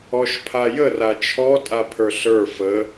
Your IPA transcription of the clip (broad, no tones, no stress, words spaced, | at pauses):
ɔʃpʰajə rat͡ʃʰɔ tʼapʰə˞ɬə˞ fə